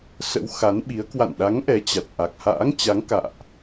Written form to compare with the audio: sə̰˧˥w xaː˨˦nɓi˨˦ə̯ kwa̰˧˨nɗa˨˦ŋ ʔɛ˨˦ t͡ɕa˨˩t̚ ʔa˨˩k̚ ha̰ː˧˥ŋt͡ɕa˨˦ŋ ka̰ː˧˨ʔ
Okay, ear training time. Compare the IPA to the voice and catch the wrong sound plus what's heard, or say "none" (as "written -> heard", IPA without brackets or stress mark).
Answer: aː˨˦ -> a˨˦